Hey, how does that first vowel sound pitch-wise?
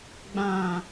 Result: low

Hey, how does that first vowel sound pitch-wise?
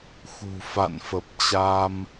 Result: low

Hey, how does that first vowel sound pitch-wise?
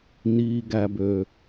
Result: low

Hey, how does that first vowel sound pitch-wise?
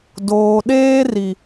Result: low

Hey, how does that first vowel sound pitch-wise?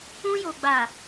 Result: high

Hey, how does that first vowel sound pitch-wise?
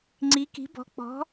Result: rising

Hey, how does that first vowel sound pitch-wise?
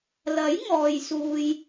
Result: rising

